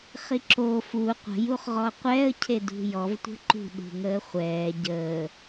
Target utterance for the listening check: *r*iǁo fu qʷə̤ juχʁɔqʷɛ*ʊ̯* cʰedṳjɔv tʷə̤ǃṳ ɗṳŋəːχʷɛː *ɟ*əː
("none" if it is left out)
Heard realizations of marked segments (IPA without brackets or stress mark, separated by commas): χ, ə̯, ɟ